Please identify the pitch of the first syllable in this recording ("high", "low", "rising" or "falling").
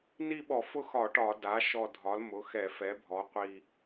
falling